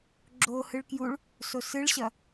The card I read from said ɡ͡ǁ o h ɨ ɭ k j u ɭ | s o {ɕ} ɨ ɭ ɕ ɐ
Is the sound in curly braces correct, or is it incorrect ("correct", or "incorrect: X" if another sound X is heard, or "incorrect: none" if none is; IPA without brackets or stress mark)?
incorrect: s